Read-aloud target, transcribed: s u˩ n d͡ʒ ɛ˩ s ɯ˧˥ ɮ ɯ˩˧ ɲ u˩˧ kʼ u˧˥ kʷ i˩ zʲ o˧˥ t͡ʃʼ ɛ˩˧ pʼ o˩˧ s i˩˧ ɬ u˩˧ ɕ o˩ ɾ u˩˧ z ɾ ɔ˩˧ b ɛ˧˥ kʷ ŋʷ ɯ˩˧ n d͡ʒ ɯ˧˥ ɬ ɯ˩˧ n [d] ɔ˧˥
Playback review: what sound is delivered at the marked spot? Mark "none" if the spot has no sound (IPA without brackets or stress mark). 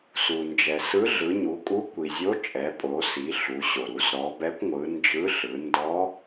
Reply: d